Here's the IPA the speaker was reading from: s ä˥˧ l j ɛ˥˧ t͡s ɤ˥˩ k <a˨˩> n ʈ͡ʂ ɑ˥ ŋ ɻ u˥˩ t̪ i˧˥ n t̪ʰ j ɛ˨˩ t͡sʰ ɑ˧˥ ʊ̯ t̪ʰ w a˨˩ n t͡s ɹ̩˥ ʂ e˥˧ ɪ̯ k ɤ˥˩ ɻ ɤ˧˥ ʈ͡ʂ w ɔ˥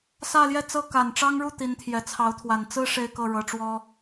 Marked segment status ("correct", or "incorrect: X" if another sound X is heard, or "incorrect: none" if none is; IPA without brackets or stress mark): correct